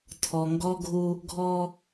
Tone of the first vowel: low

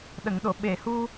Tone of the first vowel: low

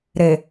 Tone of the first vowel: low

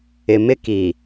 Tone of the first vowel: low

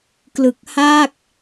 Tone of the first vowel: low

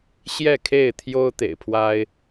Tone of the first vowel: falling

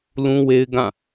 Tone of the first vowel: high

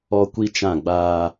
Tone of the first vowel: high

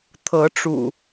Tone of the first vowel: rising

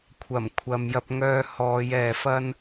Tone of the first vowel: low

